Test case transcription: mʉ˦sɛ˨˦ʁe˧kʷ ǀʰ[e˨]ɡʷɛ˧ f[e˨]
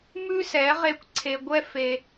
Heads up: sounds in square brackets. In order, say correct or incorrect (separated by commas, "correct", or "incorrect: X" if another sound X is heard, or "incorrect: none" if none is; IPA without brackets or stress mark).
correct, incorrect: e˧